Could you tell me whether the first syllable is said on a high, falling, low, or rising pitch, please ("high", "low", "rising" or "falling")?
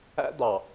high